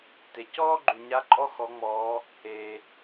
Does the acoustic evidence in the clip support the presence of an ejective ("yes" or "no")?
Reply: yes